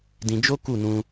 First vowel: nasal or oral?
nasal